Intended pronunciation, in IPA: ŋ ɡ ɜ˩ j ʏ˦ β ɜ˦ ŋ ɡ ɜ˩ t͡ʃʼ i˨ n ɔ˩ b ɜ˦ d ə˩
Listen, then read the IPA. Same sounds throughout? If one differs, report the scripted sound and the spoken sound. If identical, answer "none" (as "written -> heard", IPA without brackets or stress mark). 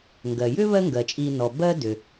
ə˩ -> ʏ˩